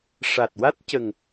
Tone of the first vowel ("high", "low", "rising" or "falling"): low